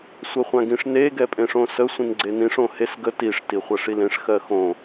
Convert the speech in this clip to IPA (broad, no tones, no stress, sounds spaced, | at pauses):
sʷ ɜ χʷ ã ɡ ĩ ʂ n e ɡ ɛ pʼ ẽ ʂ õ s ə sʷ ĩ n ɡ͡ǀ e n ĩ ʂ õ h e s ɡ ə t i ʂ t i χʷ ɜ ʂ i l ẽ ʂ x ɜ x õ